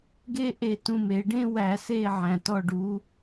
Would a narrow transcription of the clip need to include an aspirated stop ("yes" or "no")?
no